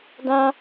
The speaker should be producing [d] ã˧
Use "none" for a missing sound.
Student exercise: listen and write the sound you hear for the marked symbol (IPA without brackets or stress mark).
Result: d